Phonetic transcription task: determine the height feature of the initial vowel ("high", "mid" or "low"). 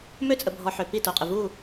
mid